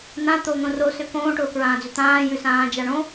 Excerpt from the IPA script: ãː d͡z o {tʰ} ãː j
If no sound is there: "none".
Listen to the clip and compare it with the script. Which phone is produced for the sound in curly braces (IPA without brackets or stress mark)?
t̪